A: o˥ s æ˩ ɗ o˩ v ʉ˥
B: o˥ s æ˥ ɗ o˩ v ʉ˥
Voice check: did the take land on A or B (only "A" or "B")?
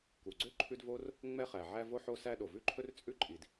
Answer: B